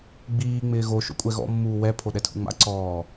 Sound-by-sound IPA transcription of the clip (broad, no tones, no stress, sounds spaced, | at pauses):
ɡ͡b iː ŋ͡m ɪː ɣ o ʃ o̰ kʷʼ ɛ ɣ ɔ̰ mː uː w ɛ pʰ o ɗ ɛ tʰ ṵ ŋ͡m a̰ ǀ ɔː